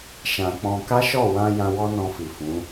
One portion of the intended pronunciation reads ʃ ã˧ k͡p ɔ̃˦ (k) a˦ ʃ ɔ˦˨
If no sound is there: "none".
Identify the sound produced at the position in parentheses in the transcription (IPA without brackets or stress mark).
k